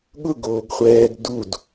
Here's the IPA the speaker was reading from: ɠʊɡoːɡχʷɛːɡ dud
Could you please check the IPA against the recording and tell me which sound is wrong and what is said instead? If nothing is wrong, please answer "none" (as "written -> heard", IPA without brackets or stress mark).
none